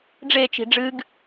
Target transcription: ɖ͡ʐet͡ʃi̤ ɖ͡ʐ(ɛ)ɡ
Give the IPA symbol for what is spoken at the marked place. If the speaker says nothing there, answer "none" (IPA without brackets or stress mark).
ɨ